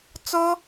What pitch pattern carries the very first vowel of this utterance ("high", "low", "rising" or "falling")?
high